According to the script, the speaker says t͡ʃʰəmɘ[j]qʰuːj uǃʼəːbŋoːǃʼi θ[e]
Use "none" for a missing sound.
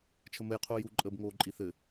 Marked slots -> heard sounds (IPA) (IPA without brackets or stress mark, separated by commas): j, ɘ